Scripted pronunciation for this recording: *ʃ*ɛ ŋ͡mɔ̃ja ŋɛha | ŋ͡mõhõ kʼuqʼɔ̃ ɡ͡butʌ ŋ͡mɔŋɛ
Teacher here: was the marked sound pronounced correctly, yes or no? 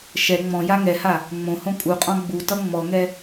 yes